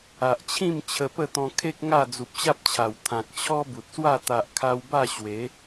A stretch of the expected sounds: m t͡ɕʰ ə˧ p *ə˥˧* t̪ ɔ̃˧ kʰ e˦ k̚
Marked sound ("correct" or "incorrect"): correct